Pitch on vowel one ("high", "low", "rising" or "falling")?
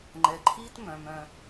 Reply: low